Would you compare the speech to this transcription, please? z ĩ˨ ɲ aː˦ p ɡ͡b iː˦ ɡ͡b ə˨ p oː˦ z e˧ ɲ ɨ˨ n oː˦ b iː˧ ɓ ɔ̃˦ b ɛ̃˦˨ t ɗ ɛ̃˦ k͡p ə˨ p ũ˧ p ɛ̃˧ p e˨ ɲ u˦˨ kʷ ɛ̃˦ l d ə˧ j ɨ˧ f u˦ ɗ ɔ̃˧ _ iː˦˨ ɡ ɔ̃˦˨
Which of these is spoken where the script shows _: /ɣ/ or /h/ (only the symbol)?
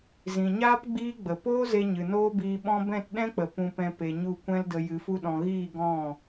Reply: ɣ